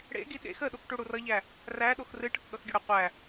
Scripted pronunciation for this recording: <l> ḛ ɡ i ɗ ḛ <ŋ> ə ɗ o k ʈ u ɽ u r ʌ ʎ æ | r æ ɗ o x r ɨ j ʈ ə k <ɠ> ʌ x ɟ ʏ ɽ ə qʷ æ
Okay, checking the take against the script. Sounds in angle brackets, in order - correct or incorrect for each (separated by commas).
incorrect, incorrect, correct